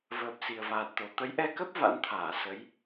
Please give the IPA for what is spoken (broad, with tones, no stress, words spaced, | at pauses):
vəː˨˩p̚ si˨˩ə̯vaː˨˩t̚t̪o˨˩ t̪ə˨˦jʔɛ˧kə˦˥p̚ va̰˧˥nt̪ʰaː˧˩ sə˨˦j